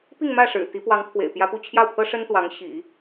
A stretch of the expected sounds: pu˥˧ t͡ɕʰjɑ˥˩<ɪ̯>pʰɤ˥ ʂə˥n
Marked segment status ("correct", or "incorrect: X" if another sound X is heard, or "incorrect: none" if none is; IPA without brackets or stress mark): incorrect: ʊ̯